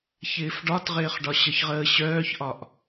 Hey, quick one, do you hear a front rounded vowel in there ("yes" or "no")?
yes